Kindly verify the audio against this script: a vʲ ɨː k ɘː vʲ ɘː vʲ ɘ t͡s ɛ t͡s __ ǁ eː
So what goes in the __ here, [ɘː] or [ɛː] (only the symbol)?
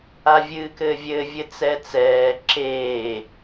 ɛː